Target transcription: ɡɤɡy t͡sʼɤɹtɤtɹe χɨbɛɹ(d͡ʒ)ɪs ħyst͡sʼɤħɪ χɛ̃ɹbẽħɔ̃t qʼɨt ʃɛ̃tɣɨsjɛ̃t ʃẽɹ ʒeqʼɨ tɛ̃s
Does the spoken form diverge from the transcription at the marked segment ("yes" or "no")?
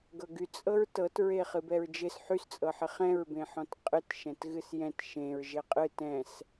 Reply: no